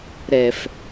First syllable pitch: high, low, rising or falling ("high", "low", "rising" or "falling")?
low